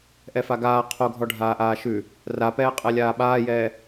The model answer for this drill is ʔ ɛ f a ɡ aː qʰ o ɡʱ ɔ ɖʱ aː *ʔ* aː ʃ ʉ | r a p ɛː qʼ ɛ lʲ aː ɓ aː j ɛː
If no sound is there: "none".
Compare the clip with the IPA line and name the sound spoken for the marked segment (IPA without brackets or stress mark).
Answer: ʔ